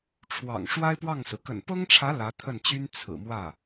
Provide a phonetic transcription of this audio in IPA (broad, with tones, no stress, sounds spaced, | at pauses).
ʈ͡ʂʰ w ɑ̰˨˩ ŋ ʂ w a˥ ɪ̯ p w ɑ˥˩ ŋ s ɹ̩˩ k ə̰˨˩ n p ɤ˥ ŋ ʈ͡ʂʰ ä˧˥ l ä˧˥ t̪ʰ ə˥˩ n t͡ɕ y˥ n t͡sʰ ɹ̩˨˩ m w ä˥˩